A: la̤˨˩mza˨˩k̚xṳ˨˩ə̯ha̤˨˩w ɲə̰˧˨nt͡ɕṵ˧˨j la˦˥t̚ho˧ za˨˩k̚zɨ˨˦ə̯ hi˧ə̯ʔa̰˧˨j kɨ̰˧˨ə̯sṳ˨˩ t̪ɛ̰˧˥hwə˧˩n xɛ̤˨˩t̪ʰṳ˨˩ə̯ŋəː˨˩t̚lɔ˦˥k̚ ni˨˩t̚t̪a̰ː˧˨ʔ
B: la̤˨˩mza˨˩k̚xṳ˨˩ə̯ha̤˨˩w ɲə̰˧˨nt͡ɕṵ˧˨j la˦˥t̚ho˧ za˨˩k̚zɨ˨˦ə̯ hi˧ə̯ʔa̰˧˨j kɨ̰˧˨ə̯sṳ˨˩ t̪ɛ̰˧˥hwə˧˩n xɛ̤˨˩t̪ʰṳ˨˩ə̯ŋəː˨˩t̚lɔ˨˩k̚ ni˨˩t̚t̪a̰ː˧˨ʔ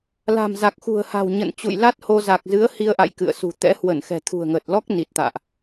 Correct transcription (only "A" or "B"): A